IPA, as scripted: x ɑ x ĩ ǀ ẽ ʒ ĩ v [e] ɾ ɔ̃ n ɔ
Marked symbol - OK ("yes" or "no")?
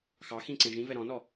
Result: no